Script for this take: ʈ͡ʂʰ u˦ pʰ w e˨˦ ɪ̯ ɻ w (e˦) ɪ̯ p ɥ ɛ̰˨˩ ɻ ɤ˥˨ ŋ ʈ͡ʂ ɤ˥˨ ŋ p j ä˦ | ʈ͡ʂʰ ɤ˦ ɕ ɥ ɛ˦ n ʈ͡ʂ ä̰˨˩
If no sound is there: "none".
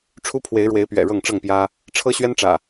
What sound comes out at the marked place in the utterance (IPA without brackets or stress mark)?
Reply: e˨˦